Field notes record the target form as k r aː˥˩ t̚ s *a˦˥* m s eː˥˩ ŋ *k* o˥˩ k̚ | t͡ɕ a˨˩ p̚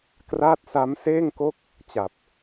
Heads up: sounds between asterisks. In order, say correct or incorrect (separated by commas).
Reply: correct, correct